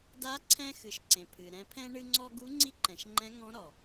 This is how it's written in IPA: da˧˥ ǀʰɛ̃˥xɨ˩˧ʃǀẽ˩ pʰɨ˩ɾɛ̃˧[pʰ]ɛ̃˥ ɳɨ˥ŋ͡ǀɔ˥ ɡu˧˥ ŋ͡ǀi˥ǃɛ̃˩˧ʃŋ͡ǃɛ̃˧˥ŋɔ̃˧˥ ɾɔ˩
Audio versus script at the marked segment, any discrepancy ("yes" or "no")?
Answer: no